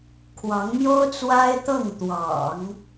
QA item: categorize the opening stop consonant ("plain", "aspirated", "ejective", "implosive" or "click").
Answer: aspirated